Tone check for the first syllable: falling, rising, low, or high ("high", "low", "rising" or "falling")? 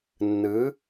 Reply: rising